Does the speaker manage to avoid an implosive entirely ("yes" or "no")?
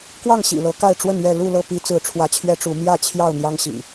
yes